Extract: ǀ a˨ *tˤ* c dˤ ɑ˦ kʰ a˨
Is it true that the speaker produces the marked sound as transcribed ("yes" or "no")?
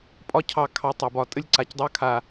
no